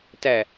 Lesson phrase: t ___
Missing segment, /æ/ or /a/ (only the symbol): æ